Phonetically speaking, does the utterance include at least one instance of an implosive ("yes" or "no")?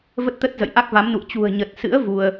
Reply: no